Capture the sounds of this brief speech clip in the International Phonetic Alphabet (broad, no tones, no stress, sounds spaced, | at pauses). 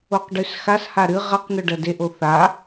o q ɖ ʉ s x a s h a ɾ ɨ ʁ ɐ q n̪ ɵ ɖ ɐ d e ʔ o θ a